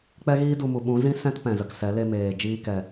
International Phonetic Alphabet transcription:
k͡pɛ˦ɣiː˦ du˧mu˨ ɓũ˨˦ zĩ˦sɛ̃˦t pɛ̃˨zə˨ksɛ˨˦ le˧meː˨ d͡ʒiː˧ kɛ˨

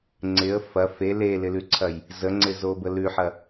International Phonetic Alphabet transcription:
ŋ͡ǀɪə̯ fɐ fe lelɪlʉǀʰɐj | zəŋ͡ǀɪzo bəlʉħɐ

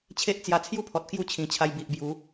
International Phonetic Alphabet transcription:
t͡ɕʰe˦ʔt͡sja˧t͡sʰju˦pʰɔ˨t̚ kju˥˧t͡ɕʰĩ˨˩t͡ɕʰa˧j bi˨ʔbju˨˦

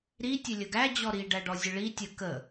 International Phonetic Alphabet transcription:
ɾi tʲɛlʲəɡæ d͡ʑɔɾi ɖæɖɔzʲəɭi tʲə kə

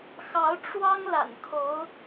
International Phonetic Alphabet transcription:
xɑ˧˥ʊ̯ ʈ͡ʂwɑ˥ŋ la̰˨˩nkʰo˧˥ʊ̯

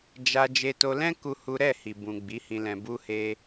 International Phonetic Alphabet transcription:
d͡ʒa˧ d͡ʒe˧to˧lɛ̃˦ ku˦hu˦ ɾɛ˦˨hi˨bũ˨ ɡ͡bi˨˦hĩ˧lɛ̃˧ bu˧he˧

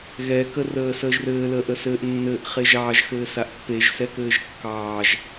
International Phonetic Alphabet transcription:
ɣɛ kərəːsəːʒrɘː ləːʔəsɘːʔ nːɘːʔχeʒɑːʒ xɘːsaʔpːeʒ sɛkɘːʒkːɑːʒ

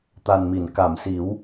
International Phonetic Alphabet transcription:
t̪a˨˩nmi˨˩˨n ka˨˩˨msi˨˩˦w

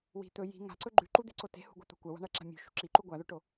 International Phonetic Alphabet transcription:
wi̤ t̪ɵ ji̤ ŋa̤ǀɵ ɡ͡ǃʉǃud̪eǀo te̤hṳɡʷɐt̪o̤ kʷɐwa̤ɳɐǁa̤ mʲṳʃṳ ǁiǃu ɡʷaðɵʈo

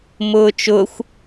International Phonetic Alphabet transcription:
mʊːt͡ʃʊːxʷ

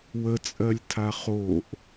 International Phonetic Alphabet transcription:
wət͡sʼɜlʲtʰa χoʔ

